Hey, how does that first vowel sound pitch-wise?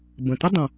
low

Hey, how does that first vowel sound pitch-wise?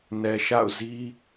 low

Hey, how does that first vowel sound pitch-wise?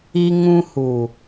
high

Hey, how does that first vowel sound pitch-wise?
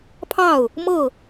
falling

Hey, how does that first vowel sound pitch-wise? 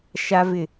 high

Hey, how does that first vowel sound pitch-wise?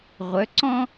rising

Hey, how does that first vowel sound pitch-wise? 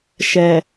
low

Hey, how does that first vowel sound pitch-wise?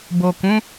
low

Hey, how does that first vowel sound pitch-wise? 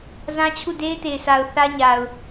high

